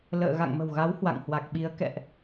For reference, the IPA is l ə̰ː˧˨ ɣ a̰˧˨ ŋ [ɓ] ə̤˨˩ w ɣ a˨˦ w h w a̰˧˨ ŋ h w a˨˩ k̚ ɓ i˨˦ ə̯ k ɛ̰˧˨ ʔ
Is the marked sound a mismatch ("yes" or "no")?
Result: yes